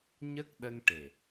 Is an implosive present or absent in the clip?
present